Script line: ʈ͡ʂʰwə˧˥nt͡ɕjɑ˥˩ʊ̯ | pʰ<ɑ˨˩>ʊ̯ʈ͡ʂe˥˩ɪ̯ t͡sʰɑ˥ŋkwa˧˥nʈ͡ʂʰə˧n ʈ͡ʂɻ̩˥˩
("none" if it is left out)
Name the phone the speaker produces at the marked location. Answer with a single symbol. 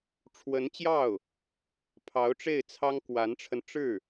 ɑ˧˥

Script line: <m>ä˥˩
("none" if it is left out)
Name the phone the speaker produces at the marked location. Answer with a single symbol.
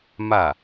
m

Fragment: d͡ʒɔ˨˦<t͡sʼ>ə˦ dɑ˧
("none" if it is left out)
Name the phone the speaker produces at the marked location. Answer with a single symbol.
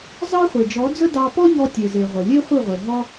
d͡z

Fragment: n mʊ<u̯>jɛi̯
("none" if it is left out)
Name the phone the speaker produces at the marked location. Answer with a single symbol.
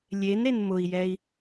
i̯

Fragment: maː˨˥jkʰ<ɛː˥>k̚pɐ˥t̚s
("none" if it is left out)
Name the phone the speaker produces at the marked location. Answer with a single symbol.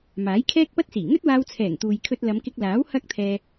ɛː˥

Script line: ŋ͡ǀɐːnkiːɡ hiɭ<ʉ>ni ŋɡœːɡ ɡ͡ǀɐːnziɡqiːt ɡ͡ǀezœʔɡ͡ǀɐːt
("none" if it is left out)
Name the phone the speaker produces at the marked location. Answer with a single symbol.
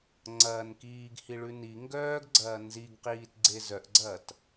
ʉ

